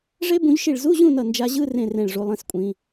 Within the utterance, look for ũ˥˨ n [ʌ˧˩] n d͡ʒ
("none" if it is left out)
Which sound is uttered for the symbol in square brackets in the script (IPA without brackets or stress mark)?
ʌ˧˩